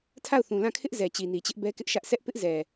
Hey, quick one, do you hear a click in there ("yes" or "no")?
no